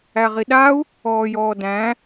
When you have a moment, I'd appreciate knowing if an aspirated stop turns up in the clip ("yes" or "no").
no